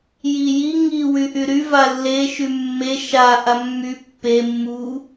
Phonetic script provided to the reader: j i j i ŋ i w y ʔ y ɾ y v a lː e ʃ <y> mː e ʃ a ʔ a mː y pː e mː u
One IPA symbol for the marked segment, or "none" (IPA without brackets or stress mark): y